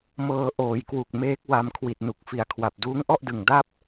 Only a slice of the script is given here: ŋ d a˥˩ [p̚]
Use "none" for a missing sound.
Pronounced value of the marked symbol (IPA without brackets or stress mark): p̚